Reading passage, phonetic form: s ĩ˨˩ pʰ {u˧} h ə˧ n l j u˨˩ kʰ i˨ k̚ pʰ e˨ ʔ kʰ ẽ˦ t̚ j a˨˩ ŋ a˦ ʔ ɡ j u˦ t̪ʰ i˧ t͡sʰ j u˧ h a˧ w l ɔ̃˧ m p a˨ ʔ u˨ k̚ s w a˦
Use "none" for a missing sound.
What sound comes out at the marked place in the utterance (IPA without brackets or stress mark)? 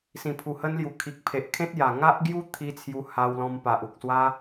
u˨˩